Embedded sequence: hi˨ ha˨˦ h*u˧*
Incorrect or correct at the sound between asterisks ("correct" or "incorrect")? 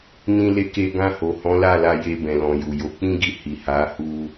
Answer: correct